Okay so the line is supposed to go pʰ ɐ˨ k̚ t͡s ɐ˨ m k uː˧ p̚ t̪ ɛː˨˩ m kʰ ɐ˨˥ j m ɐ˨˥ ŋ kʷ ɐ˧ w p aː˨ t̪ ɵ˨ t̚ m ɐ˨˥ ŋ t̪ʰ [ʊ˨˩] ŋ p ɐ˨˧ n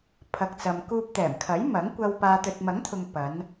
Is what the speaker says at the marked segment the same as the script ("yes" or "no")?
no